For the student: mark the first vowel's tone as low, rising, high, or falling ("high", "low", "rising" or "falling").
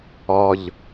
low